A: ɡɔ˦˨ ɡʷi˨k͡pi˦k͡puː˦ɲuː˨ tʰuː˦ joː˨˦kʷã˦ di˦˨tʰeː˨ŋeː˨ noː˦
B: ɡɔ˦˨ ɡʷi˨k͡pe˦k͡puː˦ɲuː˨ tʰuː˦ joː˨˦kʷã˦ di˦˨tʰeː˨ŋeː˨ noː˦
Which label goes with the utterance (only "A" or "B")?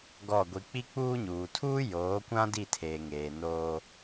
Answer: A